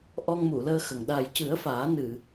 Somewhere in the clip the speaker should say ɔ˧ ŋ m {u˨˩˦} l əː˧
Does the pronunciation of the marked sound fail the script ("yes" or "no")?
yes